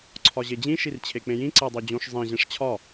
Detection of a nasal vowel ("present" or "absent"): present